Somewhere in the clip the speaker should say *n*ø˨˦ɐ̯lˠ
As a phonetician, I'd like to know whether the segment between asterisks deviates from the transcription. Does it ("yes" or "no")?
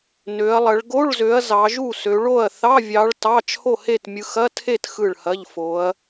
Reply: no